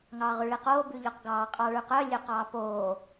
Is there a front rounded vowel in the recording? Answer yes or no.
yes